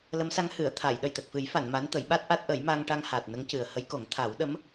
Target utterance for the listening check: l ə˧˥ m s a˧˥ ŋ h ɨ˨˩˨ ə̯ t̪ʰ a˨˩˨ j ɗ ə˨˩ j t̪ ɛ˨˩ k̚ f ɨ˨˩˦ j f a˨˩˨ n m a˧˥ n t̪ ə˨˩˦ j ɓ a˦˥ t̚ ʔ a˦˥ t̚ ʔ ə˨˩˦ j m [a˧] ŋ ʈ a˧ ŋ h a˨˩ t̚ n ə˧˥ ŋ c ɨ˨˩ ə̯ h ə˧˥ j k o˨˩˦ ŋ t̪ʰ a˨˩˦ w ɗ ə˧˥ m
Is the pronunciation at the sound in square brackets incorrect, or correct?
correct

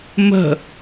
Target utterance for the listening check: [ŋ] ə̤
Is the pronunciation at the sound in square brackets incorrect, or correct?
incorrect: m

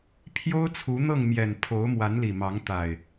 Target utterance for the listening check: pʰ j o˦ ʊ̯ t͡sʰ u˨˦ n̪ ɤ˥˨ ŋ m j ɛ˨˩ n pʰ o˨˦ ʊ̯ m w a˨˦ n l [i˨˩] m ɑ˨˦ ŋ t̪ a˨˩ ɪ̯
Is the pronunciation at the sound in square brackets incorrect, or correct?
correct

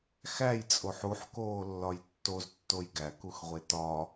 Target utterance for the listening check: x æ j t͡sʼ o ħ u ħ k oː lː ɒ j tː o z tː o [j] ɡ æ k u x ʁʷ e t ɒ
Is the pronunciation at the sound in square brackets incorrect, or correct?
correct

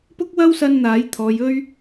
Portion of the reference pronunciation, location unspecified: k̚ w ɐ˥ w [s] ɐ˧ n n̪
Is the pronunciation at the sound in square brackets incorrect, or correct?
correct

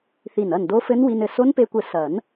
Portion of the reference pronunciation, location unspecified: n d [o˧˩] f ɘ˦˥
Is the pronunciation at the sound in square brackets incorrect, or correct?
incorrect: o˦˥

